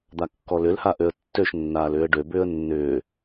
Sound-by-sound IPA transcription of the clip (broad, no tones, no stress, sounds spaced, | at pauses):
d̪ a kː ɔ l ʏ l h a ʔ ø ə̯ tː ø ʃ nː aː l ʏː ə̯ ɖ ø b ʏː ə̯ nː ʏː